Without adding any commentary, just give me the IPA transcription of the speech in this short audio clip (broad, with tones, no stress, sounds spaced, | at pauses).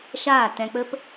ʃ aː˦˨ t ɛ̃˧ k͡p ə˦ p